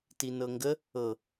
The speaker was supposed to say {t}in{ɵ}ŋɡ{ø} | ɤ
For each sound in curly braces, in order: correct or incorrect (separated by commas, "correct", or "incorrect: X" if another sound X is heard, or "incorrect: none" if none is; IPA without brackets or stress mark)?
correct, incorrect: ɤ, incorrect: ə